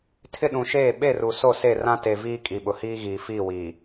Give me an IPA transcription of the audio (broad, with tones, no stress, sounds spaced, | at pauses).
tʰ ɪ˦ ɗ ũ˨ ʃ eː˦˨ ɓ e˦˨ r u˨ s o˦˨ s e˦˨ r ã˦ t e˨ v iː˦ kʼ i˨ ɓ ʊ˨ h iː˦ ɣ iː˨ f iː˦˨ w iː˨